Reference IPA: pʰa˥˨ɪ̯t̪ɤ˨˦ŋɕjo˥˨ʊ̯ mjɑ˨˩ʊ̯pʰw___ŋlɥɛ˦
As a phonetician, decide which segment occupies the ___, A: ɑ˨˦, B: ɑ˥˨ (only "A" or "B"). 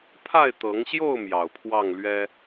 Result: B